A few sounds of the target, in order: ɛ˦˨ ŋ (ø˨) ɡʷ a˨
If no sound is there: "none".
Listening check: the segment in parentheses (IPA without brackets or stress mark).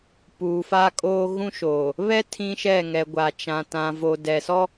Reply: ɛ˨